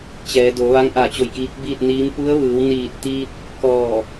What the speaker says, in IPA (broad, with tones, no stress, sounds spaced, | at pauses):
t͡ɕ ɛː˩˧ d o˩˧ ʋ a˧˥ ŋ ʔ a˧˩ t͡ɕ o˧˩ j k iː˧˥ k̚ b iː˥˨ t̚ n iː˧˥ m p u˧˥ ə̯ ʋ ɯː˩˧ w n iː˧˩ t̚ t̪ iː˧ t̚ | k ɔː˧˩